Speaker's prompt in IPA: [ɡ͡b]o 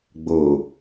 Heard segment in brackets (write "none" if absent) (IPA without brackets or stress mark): ɡ͡b